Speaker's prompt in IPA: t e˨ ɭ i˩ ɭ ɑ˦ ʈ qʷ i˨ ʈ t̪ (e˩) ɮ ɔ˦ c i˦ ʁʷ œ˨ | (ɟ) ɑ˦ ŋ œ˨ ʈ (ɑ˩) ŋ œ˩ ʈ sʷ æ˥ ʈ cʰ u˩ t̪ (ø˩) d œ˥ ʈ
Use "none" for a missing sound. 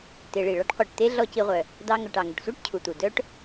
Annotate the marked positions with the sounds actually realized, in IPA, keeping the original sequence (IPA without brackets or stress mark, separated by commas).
e˥, d, ɑ˩, u˩